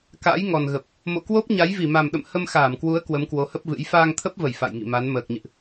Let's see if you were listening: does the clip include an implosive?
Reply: yes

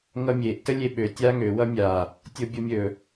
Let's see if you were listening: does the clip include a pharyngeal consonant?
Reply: no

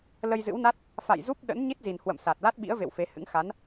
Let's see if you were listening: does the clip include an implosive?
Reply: yes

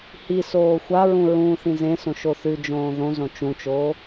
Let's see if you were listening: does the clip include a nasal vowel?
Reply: yes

